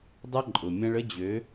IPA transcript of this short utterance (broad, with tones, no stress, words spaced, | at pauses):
dˤɐ˦ǃʼʊ˨mʲɐ̃˦ɭ ə˦d͡ʑø˨˦